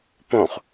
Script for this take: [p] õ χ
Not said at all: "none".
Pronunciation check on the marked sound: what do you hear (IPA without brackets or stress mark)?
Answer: p